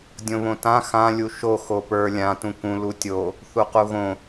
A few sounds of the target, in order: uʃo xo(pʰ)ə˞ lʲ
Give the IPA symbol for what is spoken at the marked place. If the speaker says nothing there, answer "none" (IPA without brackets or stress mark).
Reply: p